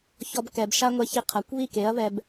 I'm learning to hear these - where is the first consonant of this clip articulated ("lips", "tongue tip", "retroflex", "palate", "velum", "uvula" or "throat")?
palate